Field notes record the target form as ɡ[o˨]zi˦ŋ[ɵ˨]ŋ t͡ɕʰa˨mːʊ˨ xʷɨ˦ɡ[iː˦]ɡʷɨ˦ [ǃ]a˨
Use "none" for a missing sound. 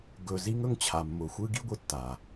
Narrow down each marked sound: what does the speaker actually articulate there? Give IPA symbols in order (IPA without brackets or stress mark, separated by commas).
ɵ˨, ɵ˦, i˦, tː